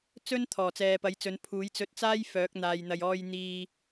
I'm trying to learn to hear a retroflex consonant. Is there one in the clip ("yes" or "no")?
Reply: no